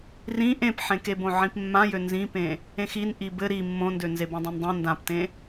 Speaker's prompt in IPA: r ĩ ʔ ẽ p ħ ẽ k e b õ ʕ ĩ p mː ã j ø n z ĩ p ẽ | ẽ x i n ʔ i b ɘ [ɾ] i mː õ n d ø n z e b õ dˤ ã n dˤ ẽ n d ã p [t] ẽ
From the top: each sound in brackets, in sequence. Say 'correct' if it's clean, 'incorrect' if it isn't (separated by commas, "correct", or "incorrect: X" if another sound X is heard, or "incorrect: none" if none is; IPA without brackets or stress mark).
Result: correct, correct